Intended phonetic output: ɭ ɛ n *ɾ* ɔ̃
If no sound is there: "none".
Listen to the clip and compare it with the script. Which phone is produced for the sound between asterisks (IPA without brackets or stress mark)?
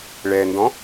d